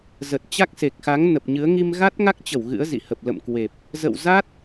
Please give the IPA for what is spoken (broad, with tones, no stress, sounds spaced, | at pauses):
z ə˨˩ t̚ t͡ɕ a˦˥ k̚ s e˨˩ k̚ x a˨˦ ŋ n ə˨˩ p̚ ɲ ɨ˨˦ ə̯ ŋ i˧ m ɣ a˦˥ t̚ ŋ a˦˥ k̚ t͡ɕ ə˧˩ w ɣ ɨ̰˧˥ ə̯ z ḭ˧˨ h ə˨˩ p̚ l ə̰˧˨ m k w e˨˩ p̚ | z ə̰˧˨ w z a˦˥ t̚